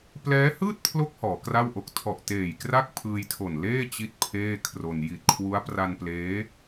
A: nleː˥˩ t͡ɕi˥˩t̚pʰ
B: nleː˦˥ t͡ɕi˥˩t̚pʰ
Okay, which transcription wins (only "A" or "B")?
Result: A